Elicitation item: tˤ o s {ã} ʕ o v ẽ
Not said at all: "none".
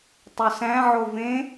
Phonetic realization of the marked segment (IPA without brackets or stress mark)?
æ̃